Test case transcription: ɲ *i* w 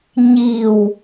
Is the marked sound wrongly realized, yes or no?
no